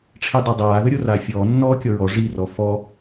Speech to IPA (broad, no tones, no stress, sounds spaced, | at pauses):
ʈ͡ʂʰ i dˤ o dˤ aː ð ə ɾʲ o r aː fʲ ɔː nː ɔː kʲ ɔ ɹ ɔ ʐ i r ɔ f ɔ